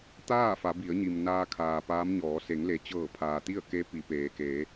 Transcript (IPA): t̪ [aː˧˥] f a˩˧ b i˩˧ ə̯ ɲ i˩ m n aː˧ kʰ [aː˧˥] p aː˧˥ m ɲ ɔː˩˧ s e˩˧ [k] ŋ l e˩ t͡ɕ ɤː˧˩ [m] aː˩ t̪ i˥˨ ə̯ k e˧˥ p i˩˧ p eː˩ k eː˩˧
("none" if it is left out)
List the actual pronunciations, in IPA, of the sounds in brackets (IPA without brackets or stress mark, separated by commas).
aː˥˨, aː˩, none, pʰ